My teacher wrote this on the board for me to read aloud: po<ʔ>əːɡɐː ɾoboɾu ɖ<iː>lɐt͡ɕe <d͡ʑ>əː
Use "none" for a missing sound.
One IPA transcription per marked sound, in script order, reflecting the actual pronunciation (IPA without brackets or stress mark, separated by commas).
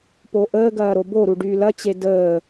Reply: ʔ, yː, d